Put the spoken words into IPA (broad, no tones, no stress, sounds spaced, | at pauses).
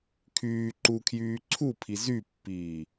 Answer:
kʰ yː ǃ u kʰ j yː ǀʰ u pʰ i z y pː iː